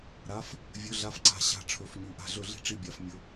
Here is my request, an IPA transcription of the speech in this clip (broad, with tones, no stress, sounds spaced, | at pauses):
ɾ a˩˧˩ f | vʲ ɵ˩˧˩ ɮ a˨˦ f ǀ a̤˧˩˧ ɕ a̤˧˩˧ ʈ͡ʂʰ ɵ˩˧˩ f ɲ ʉ˩˧˩ ʔ a̤˧˩˧ ɮ ɵ˧˩˧ ɮ i̤˥˨ ʈ͡ʂ i˥˨ bʲ a˧˩˧ f mʲ ɵ˨˦